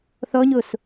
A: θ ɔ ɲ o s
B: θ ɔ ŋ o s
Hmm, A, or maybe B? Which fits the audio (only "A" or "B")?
A